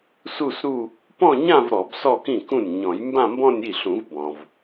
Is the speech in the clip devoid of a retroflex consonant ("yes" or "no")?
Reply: yes